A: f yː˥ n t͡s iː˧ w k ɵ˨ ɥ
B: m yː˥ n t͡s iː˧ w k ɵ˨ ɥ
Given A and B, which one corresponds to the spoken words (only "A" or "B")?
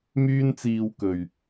B